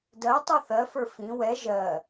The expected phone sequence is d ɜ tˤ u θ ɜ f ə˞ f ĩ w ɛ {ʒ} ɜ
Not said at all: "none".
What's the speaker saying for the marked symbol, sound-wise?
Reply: ʒ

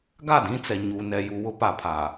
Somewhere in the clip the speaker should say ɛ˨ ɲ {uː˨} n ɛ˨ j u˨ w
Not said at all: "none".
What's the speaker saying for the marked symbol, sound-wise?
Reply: uː˨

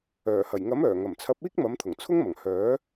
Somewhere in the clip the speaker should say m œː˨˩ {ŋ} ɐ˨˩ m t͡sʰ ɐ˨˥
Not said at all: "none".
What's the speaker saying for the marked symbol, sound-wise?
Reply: ŋ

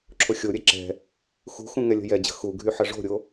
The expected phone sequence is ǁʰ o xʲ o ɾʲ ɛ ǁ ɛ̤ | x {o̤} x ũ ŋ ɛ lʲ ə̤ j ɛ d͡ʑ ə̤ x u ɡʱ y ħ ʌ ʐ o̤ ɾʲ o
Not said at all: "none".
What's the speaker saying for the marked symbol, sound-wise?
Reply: ṳ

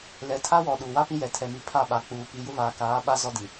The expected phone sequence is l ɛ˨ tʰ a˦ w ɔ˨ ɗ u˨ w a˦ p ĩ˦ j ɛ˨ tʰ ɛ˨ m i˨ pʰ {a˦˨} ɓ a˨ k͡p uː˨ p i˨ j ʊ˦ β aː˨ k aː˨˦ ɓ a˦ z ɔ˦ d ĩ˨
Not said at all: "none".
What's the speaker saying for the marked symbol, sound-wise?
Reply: a˦˨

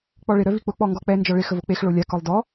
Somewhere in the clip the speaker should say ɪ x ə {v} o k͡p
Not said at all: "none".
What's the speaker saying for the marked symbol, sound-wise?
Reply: v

